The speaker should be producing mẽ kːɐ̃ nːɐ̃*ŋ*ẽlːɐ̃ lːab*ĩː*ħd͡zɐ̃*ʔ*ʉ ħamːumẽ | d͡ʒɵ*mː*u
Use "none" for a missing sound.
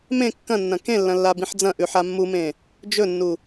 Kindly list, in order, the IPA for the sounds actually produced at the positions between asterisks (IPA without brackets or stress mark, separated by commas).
k, ĩ, ʔ, nː